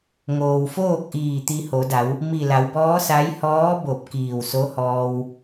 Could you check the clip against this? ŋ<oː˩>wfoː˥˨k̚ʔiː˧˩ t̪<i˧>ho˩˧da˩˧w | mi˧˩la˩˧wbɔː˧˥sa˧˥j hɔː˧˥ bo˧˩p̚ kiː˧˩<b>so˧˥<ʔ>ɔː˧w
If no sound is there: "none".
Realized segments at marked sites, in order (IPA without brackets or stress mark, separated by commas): oː˩, i˧, w, h